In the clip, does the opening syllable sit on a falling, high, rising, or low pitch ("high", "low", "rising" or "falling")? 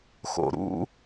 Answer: low